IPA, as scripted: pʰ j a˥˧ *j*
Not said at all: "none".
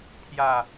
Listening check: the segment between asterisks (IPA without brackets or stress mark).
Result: none